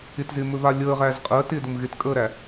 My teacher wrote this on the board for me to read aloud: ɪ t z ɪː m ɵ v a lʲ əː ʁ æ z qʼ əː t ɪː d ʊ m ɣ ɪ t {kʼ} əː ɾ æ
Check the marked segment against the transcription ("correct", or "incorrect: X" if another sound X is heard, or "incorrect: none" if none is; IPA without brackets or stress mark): correct